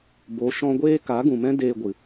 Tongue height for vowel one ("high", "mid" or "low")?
mid